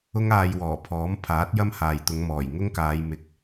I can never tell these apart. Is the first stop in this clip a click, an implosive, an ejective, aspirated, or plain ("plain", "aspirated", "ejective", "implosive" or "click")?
aspirated